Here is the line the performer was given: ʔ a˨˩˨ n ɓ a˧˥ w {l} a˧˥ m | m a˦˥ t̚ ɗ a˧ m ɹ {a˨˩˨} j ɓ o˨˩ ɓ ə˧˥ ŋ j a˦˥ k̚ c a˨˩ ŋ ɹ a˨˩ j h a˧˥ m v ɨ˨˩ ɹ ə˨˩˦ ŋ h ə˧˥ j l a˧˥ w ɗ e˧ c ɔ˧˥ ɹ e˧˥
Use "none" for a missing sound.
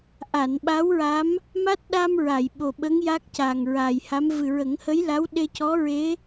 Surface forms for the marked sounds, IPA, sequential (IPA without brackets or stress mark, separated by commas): ɹ, a˨˩˨